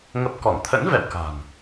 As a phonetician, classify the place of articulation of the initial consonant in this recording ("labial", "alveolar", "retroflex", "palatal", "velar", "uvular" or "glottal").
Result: velar